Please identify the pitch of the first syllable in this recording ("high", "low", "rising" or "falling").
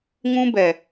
high